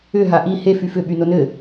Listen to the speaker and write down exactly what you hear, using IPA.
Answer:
ʏ ɦaʔi he fyfʏ ɓynonɘ

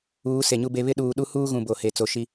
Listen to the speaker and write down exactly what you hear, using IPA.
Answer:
uː˨˦se˨ɲu˦be˦ βɪ˦ɗuː˨ ɗu˦huː˦ɣũ˨ bo˨he˨ t͡so˨ʃi˦

